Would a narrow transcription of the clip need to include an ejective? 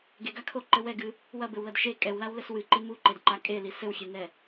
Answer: yes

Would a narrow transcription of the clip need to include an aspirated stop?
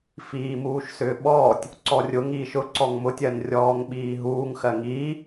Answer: no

